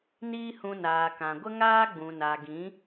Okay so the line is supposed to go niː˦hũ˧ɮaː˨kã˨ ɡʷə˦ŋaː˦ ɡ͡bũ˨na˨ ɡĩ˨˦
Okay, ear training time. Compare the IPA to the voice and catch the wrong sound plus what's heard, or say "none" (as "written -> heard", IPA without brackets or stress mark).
ɮ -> n